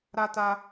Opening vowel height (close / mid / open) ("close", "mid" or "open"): open